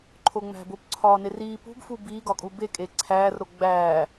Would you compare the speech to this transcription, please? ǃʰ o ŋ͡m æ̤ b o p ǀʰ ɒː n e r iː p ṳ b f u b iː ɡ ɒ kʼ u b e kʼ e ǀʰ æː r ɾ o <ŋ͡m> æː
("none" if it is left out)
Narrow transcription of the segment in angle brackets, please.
ɡ͡b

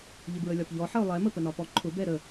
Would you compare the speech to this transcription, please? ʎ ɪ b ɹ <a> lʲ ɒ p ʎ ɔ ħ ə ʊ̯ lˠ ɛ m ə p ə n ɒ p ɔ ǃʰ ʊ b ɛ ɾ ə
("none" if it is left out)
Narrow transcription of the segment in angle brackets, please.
ə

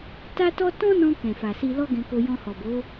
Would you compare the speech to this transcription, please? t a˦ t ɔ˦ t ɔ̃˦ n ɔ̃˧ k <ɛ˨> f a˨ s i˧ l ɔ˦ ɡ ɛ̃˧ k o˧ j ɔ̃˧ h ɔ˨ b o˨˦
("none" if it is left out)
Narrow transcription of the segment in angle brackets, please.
ɛ̃˨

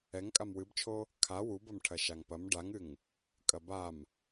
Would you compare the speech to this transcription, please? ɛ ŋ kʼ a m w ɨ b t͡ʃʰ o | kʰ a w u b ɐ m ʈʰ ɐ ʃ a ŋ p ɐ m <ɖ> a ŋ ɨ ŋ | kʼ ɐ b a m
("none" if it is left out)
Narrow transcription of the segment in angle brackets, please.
ɖ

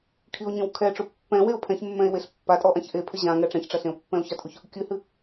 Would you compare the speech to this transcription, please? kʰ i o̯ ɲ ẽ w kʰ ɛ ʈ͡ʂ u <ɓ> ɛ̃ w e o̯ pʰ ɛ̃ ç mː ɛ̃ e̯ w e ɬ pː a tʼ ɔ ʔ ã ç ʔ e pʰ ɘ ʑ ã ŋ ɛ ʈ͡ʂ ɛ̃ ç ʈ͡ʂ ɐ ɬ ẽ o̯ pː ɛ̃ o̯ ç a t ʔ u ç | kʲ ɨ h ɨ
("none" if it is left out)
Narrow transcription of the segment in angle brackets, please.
pː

